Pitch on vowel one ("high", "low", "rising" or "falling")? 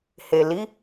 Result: low